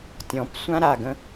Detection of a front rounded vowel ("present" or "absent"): absent